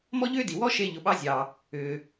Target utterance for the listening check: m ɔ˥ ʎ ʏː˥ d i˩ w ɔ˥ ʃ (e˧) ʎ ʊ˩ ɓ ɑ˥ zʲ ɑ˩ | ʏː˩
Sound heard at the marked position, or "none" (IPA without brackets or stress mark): e˧